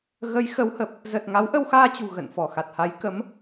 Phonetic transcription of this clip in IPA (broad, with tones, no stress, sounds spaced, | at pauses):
ɣ ə˨˦ j x ə˨˦ w h ə˨˩ p̚ | z ə˨˩ t̚ ŋ a˨˦ w ʔ ə˧ w x aː˧ t͡ɕ ṳ˨˩ ɣ ə̰˧˨ n f ɔ˧˩ x a˨˩ t̚ h a˨˦ j k ə˨˦ m